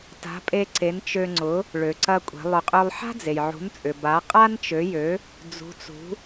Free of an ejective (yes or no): no